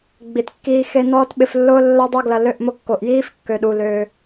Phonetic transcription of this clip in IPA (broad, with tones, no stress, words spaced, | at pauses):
ɡ͡bi˨tkːiː˧xe˧ nɔː˦tɓɪ˧flːʊː˦ lːɐ˦dˤo˦ɡlɐ˧ lø˧ʔmʊ˧ kːo˨ʔjiː˦f kːø˨ɗu˨ løː˧